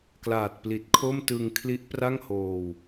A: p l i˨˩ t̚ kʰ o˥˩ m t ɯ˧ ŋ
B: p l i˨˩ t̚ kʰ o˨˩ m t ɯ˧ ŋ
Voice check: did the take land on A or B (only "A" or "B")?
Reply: A